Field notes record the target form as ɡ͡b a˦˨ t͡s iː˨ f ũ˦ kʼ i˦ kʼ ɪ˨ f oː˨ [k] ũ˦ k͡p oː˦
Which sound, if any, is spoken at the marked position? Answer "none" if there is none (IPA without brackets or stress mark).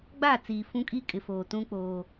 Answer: t